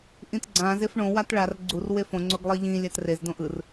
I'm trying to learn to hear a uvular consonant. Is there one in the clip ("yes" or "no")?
no